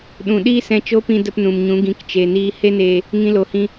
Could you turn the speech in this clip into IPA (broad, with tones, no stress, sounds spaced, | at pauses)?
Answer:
ɗ ũ˨ ɗ iː˦ s ɛ̃˧ t͡ʃ o˦ p ĩ˧ d ə˧ p n ũ˨ m ɲ ũ˨˦ ɡ ĩ˨˦ k t͡ʃ e˨ n iː˧ h e˦ n eː˧ | ŋ ĩ˧ l o˨ h ĩ˧